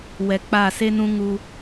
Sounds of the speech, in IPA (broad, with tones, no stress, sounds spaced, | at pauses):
w ɛ˨ k͡p a˦˨ s e˦ n ũ˦ ŋ u˦